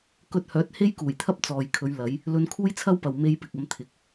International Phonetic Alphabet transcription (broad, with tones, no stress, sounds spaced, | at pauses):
k ɵ˧ t̚ h œː˨˥ t̚ h e˥ j k uː˨˩ j t̪ʰ ɐ˥ p̚ t͡s ɔː˨ j kʰ ɵ˨˧ ɥ l ɐ˨˧ j | l ɵ˧ n kʰ uː˥ j t͡sʰ ɐ˥ w p ɐ˨ w m e˧ j p ɪ˨ k̚ ɐ˨˧ m t̪ʰ ɪ˨˥ k̚